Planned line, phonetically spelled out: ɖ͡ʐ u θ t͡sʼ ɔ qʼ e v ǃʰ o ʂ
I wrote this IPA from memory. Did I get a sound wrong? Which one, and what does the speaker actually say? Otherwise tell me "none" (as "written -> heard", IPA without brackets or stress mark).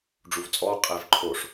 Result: θ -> v